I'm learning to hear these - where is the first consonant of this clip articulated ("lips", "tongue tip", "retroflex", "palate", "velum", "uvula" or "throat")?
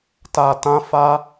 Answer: tongue tip